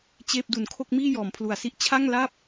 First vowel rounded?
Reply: no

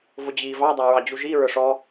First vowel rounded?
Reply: yes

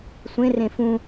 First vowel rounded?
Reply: no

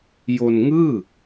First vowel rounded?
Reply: yes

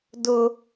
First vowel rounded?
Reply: yes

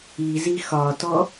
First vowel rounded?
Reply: no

